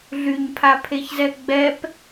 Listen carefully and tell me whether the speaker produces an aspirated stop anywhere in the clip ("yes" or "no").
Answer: yes